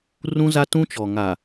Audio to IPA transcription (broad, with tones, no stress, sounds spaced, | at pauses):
r ũ˦ z a˦ t ũ˦ t͡ʃ ɔ˨ ŋ a˨